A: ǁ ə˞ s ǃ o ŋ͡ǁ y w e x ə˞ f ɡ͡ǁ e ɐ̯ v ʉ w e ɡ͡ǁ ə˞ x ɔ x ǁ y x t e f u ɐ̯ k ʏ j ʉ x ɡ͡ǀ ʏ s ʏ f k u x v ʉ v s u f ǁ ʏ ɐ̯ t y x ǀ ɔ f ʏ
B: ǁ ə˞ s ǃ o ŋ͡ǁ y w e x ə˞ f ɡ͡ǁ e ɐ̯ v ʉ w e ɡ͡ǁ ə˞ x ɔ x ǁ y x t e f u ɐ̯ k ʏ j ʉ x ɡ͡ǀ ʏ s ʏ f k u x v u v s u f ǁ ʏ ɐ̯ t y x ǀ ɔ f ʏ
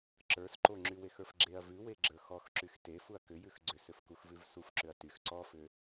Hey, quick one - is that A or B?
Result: A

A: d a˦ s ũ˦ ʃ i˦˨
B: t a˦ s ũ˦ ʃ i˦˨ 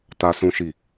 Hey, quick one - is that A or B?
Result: B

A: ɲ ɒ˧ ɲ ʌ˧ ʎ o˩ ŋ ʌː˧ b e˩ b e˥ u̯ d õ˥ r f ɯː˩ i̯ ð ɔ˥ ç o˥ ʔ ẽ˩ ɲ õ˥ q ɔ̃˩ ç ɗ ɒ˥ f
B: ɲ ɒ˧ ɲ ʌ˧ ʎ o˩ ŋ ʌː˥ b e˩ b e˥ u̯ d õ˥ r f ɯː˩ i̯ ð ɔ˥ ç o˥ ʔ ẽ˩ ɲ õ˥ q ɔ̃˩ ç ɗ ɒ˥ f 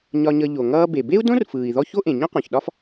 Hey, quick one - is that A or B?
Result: A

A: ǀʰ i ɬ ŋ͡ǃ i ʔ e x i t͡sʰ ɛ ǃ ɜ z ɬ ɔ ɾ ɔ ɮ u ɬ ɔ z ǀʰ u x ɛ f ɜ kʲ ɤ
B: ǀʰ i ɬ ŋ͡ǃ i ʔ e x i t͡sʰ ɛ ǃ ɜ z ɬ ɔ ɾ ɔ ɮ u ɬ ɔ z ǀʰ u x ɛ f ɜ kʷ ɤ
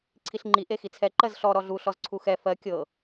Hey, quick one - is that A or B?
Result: A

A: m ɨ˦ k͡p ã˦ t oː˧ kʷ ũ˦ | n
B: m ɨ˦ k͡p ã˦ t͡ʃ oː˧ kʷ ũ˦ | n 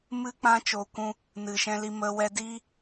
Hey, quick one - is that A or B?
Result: B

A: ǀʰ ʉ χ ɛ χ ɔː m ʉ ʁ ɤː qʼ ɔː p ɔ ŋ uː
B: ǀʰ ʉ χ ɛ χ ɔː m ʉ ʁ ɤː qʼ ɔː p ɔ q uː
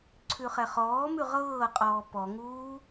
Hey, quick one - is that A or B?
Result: A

